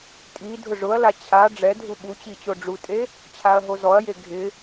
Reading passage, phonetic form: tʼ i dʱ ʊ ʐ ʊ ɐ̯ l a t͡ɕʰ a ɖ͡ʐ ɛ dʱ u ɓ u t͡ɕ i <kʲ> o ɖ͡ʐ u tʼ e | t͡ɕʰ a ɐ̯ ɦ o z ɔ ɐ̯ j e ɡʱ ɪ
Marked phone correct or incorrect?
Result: incorrect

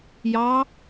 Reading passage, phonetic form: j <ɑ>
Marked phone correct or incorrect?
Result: correct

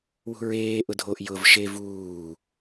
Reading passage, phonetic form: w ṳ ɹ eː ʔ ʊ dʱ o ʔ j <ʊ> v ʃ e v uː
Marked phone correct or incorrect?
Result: correct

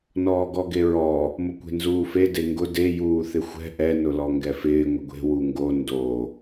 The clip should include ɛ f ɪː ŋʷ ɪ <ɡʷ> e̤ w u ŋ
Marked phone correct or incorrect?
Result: correct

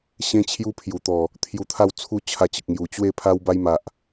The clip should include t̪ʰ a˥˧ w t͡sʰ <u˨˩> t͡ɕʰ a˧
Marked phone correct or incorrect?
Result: incorrect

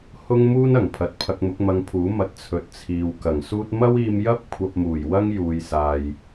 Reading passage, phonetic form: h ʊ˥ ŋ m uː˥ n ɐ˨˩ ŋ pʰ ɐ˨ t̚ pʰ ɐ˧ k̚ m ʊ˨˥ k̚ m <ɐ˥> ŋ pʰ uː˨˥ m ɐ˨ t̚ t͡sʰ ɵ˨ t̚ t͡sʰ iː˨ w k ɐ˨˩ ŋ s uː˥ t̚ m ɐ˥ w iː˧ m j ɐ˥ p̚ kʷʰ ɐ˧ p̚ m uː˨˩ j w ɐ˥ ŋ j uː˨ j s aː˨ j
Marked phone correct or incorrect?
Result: incorrect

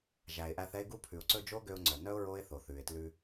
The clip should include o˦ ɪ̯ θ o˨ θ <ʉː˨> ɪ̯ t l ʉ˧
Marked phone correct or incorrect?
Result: correct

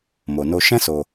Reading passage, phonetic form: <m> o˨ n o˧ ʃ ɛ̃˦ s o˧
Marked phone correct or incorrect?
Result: correct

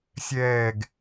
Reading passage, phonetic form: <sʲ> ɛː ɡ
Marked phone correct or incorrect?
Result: correct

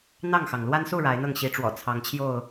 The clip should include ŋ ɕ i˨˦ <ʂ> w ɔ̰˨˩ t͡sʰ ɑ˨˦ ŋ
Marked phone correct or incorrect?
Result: incorrect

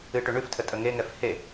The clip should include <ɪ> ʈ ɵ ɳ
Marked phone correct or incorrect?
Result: incorrect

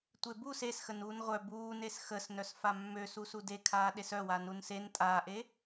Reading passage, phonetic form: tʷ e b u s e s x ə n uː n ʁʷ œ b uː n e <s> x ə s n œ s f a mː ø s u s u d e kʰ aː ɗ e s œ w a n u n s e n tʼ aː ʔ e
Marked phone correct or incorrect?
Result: correct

